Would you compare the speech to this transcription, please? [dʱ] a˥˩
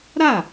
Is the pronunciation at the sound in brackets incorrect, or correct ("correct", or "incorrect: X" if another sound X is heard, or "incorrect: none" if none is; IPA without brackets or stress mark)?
incorrect: ɾ